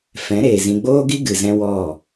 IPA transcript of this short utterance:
f ɛ̃˨˦ ɾ eː˨ z ĩ˨ ɡ͡b oː˦ ɡ i˦ ɡ ɨ˨ z ɛ̃˧ w ɔ˦˨

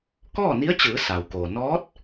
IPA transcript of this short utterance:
k ɔː˥˨ n i˧˥ ə̯ t͡ɕ ɯː˩˧ s a˩ w k oː˩ n ɔː˧˥ t̚

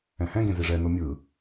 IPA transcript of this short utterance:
ɛ̃ h ɛ̃ ɡ ẽ z i ʐ ɛ n o mʲ ɯ

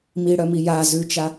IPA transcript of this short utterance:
m i ɽ œ m i j a z ʉ t͡ʃ a

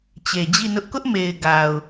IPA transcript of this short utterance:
t͡ɕ e˨ d͡ʑ i˦˨ n ʊ˦ ʔ k ʊ˦ ʔ m e˨ ɪ̯ ɡ a˨ ʊ̯

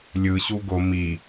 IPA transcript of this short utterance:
lʲ ɯ ɕ u ɡ o m i

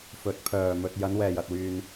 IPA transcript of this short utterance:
f ɵ˨˥ t̚ pʰ œː˨ m ɵ˧ t̚ j ɐ˨˧ n w ɛː˨ j ɐ˨ t̚ w yː˧ n

